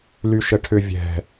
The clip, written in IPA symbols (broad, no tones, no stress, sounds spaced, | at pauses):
l y ʃ ə ʈʰ ʏ vʲ ɛ̤